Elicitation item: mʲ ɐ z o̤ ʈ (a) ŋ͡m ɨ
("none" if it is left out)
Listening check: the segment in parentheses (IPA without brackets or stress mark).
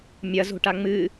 a